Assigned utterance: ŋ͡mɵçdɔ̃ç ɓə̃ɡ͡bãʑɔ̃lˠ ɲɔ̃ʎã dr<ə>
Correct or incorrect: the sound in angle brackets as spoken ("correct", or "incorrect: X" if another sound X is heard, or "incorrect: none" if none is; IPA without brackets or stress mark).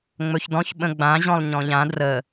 correct